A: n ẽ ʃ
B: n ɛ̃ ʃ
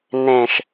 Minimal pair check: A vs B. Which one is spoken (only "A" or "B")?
A